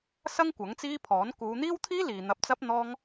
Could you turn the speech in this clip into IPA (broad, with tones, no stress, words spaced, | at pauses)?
sɐ˥ŋ kʷɐ˨˥ŋt͡siː˥pʰɔː˨˥n kuː˨˧n̪iː˥wt̪ʰiː˥liː˨ n̪ɐ˧p̚t͡sɐ˥p̚ n̪ɔː˥ŋ